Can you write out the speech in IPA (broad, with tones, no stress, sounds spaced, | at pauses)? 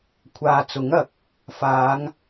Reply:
kʷʰ aː˨ t͡s ʊ˨˥ ŋ ɐ˨˥ k̚ | f aː˨˧ ŋ